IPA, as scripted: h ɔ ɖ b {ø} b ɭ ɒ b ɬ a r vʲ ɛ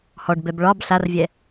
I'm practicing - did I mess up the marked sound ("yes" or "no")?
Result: yes